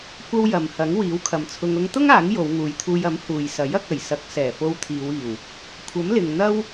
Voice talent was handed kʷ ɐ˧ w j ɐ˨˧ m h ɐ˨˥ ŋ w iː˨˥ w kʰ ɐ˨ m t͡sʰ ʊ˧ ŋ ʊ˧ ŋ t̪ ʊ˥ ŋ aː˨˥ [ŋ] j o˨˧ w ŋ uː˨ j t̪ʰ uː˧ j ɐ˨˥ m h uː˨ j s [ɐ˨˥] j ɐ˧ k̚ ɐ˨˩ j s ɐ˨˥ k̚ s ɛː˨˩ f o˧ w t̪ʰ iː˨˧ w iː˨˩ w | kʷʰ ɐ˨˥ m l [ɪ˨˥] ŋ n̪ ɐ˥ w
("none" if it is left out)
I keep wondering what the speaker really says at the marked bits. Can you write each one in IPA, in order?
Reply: ŋ, ɐ˨˥, ɪ˨

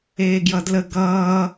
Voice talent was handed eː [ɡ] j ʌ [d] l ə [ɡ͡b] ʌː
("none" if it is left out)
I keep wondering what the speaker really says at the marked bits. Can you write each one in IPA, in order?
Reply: ɡ, d, ɡ

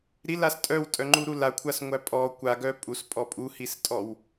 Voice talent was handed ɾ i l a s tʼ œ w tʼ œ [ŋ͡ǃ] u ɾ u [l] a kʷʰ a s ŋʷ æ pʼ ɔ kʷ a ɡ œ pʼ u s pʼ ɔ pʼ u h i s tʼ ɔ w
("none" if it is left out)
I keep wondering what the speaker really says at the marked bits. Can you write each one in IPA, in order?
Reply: ŋ͡ǃ, l

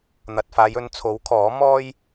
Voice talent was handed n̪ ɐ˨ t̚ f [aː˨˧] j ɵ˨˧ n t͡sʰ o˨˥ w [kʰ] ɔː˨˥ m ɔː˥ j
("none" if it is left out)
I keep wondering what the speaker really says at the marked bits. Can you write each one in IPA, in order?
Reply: aː˨˧, kʰ

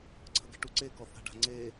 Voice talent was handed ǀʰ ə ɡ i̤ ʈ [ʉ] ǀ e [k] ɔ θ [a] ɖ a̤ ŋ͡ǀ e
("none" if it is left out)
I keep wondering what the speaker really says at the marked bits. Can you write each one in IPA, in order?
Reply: u, k, a̤

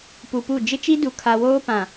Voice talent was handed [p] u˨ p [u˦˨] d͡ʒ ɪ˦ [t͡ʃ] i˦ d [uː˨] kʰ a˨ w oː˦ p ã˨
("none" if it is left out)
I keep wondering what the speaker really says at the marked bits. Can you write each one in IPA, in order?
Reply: p, u˦˨, t͡ʃ, u˨

